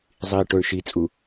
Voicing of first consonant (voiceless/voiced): voiced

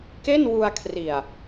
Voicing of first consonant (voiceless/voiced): voiceless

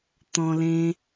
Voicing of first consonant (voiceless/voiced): voiceless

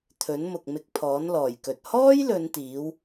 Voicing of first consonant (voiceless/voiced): voiceless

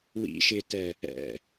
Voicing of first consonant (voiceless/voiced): voiced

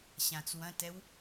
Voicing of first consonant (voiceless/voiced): voiceless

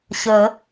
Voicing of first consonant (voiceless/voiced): voiceless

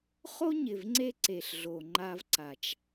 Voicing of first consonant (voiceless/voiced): voiceless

